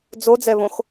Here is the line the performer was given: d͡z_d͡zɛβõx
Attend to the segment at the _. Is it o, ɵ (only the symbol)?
o